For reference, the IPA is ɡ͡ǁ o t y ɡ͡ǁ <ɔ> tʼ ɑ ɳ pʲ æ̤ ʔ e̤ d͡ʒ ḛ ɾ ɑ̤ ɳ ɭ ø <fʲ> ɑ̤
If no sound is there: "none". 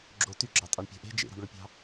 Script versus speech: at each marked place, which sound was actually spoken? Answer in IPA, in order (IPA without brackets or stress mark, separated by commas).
ɑ, pʲ